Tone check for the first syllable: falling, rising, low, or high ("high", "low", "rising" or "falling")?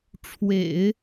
low